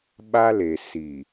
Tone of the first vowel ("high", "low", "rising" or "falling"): high